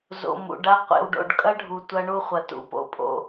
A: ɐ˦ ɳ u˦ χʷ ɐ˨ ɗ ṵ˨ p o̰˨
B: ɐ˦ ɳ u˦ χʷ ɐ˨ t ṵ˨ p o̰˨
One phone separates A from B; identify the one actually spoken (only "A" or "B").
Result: B